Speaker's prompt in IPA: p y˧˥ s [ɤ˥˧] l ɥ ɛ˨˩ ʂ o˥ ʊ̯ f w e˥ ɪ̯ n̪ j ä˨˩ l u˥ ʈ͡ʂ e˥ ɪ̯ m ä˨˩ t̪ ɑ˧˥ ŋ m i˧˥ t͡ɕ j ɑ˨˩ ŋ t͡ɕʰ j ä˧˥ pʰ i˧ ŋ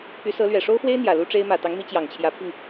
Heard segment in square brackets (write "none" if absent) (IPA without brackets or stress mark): ɤ˧˥